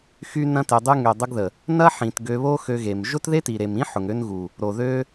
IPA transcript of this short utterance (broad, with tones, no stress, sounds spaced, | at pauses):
x y˦ n ɐ̃˦ t e˧ dˤ y˧ ŋ ø˨ dˤ ʊ˧ ɡ ð ə˨ | n ɐ˦ ħ ĩ˨ t ɡ ø˧ β o˦ x ø˧ ɣ e˨ m ʒ ʊ˦ t ð e˦ t i˨ ɾ e˨ m ĩ˦ ħ ʊ˨ ŋ ø˦ n ɣ u˨ | ɾ o˨ ð ø˦